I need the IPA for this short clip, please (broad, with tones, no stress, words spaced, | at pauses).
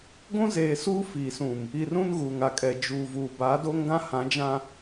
ɡʷũ˦zeː˨suː˦ fi˨sũ˨m | i˨rũ˦n ɣuː˨ŋa˨kʼɛ˨ d͡ʒuː˨vuː˨ baː˨˦do˦ŋɡã˦ hã˨˦d͡ʒã˨